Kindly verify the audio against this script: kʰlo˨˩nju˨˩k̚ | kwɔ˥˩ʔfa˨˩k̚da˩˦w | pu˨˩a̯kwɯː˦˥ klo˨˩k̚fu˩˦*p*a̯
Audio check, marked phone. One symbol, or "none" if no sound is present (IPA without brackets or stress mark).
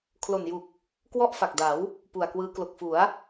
none